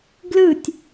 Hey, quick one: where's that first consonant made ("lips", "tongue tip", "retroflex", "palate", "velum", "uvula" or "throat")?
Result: velum